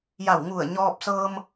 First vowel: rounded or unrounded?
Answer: unrounded